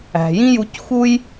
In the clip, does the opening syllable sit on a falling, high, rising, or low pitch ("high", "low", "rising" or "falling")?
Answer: low